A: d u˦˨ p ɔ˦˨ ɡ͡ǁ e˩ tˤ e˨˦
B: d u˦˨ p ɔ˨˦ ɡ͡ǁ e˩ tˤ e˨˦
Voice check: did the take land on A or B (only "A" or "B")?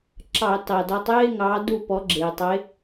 B